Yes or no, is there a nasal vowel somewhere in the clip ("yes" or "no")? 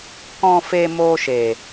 yes